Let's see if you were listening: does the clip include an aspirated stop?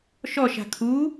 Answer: yes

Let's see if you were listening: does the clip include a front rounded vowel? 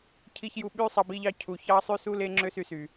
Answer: yes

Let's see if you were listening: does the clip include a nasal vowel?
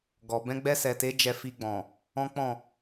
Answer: yes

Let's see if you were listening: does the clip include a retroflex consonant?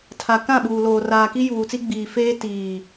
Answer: no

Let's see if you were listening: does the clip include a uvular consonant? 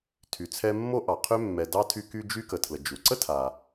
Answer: yes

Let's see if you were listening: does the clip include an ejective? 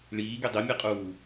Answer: yes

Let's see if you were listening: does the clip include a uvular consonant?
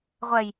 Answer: yes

